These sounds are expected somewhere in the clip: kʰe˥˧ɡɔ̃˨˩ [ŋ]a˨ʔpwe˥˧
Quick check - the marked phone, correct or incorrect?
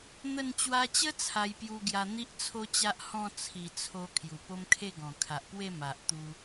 incorrect